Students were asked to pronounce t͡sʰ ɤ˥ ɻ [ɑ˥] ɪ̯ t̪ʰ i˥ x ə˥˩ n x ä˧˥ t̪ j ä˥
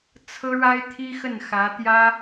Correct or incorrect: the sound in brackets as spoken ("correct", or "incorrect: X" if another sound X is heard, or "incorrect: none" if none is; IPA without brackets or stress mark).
incorrect: a˥